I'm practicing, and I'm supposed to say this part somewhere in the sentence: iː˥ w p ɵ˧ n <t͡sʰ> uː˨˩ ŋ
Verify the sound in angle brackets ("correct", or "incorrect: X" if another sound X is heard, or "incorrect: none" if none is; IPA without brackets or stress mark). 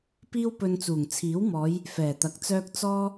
incorrect: t͡s